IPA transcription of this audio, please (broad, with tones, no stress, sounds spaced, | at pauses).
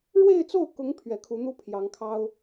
ɻ w e˥˧ ɪ̯ t͡s o˥˩ ʊ̯ k ʊ˧˥ ŋ pʰ ɥ ɛ˧˥ kʰ u˧˥ n̪ u˥ pʰ j ɑ˧˥ ŋ kʰ ɑ˥ ʊ̯